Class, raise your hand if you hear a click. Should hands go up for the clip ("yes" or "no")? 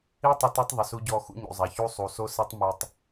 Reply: no